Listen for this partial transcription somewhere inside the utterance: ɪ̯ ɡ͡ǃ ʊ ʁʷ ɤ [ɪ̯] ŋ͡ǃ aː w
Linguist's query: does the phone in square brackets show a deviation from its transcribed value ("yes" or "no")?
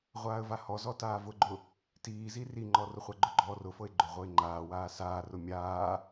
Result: no